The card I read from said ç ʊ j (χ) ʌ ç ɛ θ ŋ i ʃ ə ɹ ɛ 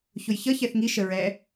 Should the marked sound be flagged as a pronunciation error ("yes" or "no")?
yes